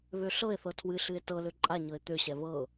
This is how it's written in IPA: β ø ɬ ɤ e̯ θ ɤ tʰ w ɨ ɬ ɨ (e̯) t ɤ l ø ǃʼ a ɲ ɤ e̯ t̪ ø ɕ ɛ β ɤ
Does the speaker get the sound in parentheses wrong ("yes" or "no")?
no